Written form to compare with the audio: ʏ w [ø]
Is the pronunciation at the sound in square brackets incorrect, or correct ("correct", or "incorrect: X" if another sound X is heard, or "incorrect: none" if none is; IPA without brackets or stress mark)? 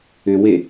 incorrect: e